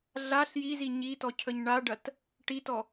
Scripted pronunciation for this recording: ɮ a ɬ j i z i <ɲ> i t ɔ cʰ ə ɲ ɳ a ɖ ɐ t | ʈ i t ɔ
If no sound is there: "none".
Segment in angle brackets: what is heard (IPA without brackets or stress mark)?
ɲ